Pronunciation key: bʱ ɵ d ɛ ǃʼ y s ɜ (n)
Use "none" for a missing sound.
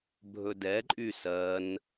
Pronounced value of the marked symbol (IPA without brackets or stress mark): n